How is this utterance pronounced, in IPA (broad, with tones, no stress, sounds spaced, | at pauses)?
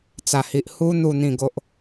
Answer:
t͡s a˨˩ h i˨ ʔ h u˧ n̪ u˨˩ n̪ ĩ˨˩ ɡ o˨ ʔ